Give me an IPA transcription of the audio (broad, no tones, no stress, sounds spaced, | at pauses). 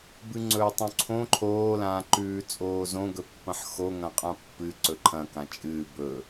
b ɨ ŋ͡ǀ ɵː tˤ õ ǀʰ õ ǃʰ oː l ãː ǃ ʉː t͡sʼ oː z õ ɡ ɵ pː ɐ̃ ħ x o ŋ ɐ̃ qʼ ã pː ɨ ǀ ɵ ǃʰ ɐ̃ k ã t͡ʃʼ ɨː b ɵ